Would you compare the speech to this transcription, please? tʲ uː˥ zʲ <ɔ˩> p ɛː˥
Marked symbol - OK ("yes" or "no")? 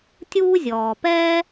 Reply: no